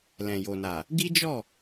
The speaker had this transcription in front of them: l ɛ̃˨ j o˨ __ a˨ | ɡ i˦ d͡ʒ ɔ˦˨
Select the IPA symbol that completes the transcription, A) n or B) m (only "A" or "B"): A